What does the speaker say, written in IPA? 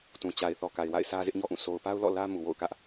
t ũ˨ t͡ɕ a˨ ɪ̯ θ ɔ˨ k a˨ ɪ̯ w a̰˦˨ ɪ̯ sʰ ä˦ z ɪ˦ ʔ ɲ ɔ˦ ʔ ũ˦˨ sʰ o˨ ʊ̯ p a˦ ʊ̯ l ɔ̰˦˨ l ä˦ m u˨ w o̰˦˨ ʊ̯ k ä˦ ʔ

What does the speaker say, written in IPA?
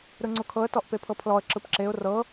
ɾ ɯ ŋ͡ǀ u kʰ ɤ ə̯ t ɔ ʔ p e pʰ ɤ pʰ l ɔ ə̯ ǁ ɯ p ǁ e ʊ̯ r ɤ

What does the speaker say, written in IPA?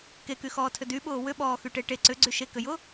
k e k y x ɔː tʰ ʏ d y ɓ ʊː w ʏ ɓ ɔː x y ʈ e ʈ e ǀ ʏ ɡ͡ǀ y ʃ e k ʏ j ʊ

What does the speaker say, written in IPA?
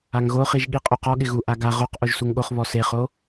a ŋ ɣ o χ i ʒ ɠ i qʼ o q ɔ ɠ ɪ ɣ u ʔ a ɡ a ʁ o q ʔ o ʒ s u ŋ ɠ o χ β ɔ s e χ o

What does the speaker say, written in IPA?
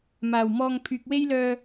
m aː˨˩ w m ɔː˧ ŋ pʰ yː˨ k̚ w e˥ j l œː˧

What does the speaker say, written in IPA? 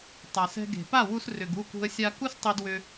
tˤ a˨ s ɛ̤˧ ɡ e̤˨ p a˦˨ w u˧ s r ʏ˨ ɡ u˦˨ k ṳ˧ ə̯ sʲ a˧ k u˦ s tˤ e˧ d w ʏ˧

